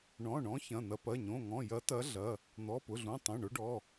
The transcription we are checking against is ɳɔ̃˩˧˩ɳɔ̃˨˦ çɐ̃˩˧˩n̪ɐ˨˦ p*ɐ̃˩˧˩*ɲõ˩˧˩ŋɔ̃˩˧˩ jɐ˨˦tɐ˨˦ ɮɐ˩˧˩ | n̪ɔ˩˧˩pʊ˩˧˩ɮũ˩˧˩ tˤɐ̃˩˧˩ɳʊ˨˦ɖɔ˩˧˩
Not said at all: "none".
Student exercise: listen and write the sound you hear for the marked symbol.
ɐ˩˧˩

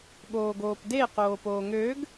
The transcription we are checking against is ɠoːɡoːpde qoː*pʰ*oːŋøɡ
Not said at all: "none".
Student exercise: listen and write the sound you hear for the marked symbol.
p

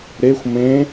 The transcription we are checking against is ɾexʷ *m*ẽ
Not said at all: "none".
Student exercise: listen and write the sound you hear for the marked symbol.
m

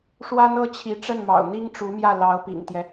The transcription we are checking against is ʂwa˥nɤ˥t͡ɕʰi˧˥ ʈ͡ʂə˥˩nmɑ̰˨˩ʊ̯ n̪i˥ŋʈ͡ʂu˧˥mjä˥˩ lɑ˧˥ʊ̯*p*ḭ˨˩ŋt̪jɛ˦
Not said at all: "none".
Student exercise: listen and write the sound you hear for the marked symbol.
p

